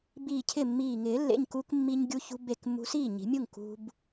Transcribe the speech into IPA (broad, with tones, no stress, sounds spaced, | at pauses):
b iː˧˩ cʰ ɪ˥˩ mː iː˧˩ ŋ ɪː˨˩˦ lː ḛ˩˧˩ ɲ k u˧ k mː i˧ ɲ ɡʲ u˧ ç ṳ˧ b e˧˩ k mː ṳ˧ s iː˥˩ ɲ i̤˨˩˦ mʲ u˥˩ ŋ k ṳ˧ b